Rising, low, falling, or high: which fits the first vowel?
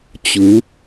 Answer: rising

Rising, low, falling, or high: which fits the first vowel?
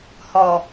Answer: low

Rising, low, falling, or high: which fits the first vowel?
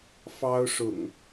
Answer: high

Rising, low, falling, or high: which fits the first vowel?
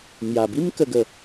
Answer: low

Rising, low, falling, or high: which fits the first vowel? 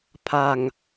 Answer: low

